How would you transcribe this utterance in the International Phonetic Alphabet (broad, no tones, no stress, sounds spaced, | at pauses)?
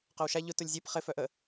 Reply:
q œ w ʃ a ʎ ʊ t ʊ lʲ zʲ ɛ p χ ɪ f œ ʔ ə